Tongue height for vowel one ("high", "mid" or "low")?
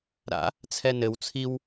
low